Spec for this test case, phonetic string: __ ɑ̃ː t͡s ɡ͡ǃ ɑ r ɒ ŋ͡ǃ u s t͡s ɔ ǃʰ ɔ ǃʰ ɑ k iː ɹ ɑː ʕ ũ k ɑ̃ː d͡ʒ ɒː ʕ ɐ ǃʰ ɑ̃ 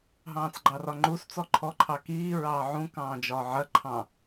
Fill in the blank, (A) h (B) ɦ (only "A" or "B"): B